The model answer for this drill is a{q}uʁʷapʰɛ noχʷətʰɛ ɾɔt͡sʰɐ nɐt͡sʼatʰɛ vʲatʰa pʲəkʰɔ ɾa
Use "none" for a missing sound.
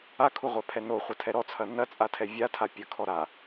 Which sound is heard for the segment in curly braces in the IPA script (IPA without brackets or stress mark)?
kʰ